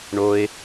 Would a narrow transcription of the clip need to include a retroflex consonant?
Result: yes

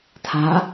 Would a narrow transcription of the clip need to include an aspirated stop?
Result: yes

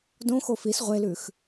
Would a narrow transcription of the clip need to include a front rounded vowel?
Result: no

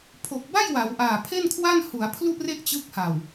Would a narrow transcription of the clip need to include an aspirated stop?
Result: yes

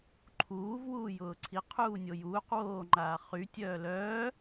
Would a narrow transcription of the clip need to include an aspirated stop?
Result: yes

